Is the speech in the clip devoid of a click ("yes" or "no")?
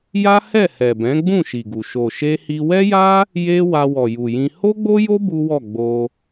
yes